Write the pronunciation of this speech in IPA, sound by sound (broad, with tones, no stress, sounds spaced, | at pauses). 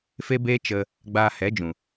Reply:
f e˦ b eː˦ t͡ʃ ə˧ | ɡ͡b aː˧ h ɛ˨˦ d͡ʒ ũ˨